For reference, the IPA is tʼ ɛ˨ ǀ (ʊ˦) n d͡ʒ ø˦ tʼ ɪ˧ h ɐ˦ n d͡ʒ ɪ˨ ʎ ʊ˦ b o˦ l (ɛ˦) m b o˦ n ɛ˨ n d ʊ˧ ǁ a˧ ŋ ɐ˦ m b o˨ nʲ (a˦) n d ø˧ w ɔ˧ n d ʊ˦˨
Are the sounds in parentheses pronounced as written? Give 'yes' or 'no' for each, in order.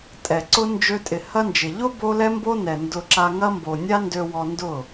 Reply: yes, yes, yes

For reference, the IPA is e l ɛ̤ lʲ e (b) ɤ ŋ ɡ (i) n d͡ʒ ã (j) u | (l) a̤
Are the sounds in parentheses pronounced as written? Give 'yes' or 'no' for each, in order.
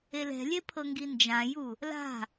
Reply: no, yes, yes, yes

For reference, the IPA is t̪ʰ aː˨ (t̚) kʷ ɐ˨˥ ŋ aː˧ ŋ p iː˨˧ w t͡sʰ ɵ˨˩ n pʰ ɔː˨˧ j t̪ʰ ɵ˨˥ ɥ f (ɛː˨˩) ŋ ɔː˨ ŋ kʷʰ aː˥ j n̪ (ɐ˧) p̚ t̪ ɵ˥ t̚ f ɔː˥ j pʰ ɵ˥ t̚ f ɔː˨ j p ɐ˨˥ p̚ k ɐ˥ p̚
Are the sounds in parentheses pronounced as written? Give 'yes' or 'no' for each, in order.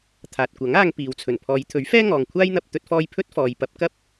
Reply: yes, no, yes

